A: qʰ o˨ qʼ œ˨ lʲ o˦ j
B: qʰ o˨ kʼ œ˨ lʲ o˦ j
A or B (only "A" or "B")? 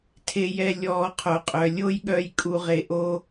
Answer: A